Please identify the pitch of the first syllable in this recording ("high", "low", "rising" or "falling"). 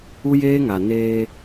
high